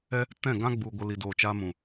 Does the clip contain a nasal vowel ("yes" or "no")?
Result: yes